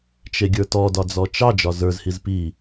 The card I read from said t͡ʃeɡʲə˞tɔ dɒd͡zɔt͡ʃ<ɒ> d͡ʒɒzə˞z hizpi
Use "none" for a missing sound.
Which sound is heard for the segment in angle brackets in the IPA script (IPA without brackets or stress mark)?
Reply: ɑ